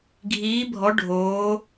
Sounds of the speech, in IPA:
ɡʱiː˧˥bʱɔ˧˥ ɖʱoː˧˥

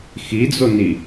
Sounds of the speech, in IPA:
xid͡zoni

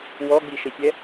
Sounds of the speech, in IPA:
wɔɡ͡biʃɘsʲɛ

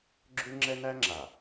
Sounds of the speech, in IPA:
ɡ͡ǁʉ˦ŋ͡ǁɛ˦næ˦ŋ͡ǁa˨

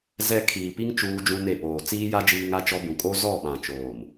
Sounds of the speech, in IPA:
zɛ˦ kʰiː˨pi˦ŋ t͡ʃuː˦d͡ʒũ˦ne˦˨ poː˨ t͡siː˦ja˦ d͡ʒiː˦ŋa˦t͡ʃɔ˦ bũ˨kʼo˦ zɔ˦˨ɓã˨t͡ʃoː˨m

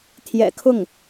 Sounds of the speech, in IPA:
t̪ʰjɛ̰˨˩kʰʊ˥˩ŋ

